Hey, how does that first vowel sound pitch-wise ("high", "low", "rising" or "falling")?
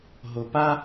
low